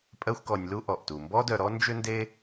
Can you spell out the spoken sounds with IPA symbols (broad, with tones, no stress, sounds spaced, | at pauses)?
pʼ ɜ˥ xʷ k ɔ˧ nʲ l u˥ ʔ ɔ˩ ʔ t u˩ m b ɔ˥ d œ˧ ɾ ɔ˥ n d͡ʒ ʏ˥ n d e˥